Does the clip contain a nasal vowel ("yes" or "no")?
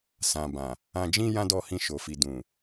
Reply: yes